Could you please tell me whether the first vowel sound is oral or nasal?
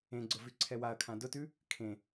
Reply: nasal